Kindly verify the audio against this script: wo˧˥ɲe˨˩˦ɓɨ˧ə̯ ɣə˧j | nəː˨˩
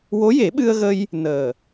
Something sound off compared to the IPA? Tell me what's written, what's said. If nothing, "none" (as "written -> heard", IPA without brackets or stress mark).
ɲ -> j